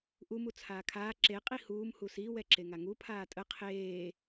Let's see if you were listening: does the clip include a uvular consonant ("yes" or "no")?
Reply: yes